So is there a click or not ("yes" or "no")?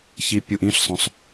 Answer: no